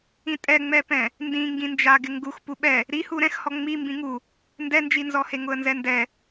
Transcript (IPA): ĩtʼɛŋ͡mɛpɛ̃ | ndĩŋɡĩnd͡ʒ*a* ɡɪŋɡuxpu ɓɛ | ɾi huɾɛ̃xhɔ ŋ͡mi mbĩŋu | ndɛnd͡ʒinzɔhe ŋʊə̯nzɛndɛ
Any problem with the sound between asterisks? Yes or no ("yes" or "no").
no